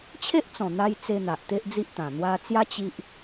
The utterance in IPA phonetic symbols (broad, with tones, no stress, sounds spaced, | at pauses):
t͡ɕʰ e˦ ʔ t͡s ɔ̃˨˩ n̪ a˧ j t͡s e˧ n̪ a˨ ʔ t̪ e˦ ʔ d͡z i˦ ʔ t̪ ã˨˩ n̪ w a˧ t͡s j a˦ t͡ɕ i˦ ʔ